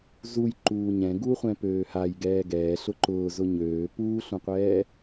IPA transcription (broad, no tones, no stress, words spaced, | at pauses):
zujǃuː ɲɛ̃ ɡuːχʷɛ̃pøːhaj ɡɛːɡɛː ɬʊǃʊː zʊɲøː puːɬũqʷɛː